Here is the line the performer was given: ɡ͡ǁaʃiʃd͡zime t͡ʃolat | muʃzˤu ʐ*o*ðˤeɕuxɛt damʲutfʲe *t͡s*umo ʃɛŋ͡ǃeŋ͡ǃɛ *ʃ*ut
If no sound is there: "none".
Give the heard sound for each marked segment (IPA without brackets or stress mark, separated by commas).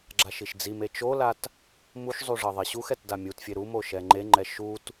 ɤ, ɾ, ʃ